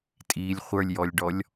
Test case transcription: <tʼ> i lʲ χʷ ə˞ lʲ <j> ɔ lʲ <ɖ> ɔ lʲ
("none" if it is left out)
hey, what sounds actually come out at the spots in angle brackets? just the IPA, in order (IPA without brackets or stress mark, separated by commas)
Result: tʼ, j, ɖ